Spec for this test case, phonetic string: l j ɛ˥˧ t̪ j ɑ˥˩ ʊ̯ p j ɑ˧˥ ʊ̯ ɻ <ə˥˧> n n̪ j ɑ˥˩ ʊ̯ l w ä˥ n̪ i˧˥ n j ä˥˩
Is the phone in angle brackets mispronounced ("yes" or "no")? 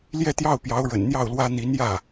yes